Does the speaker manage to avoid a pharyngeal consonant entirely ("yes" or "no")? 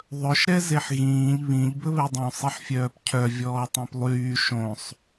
no